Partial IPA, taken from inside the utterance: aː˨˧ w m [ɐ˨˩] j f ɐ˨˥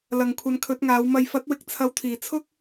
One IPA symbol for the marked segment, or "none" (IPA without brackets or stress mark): ɐ˨